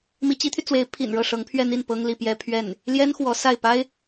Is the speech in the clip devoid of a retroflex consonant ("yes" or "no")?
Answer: no